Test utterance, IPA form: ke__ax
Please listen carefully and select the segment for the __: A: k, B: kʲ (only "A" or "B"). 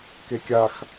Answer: B